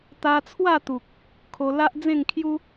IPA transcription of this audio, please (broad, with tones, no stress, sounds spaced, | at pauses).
t̪ a˧ t͡sʰ w a˥˧ t̪ u˨ k̚ | kʰ o˧ l a˦ ʔ d͡z ẽ˥˧ ŋ kʰ j u˦